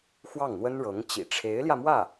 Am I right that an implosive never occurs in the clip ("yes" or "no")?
yes